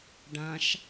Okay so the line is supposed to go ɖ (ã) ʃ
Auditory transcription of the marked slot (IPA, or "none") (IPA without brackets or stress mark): ã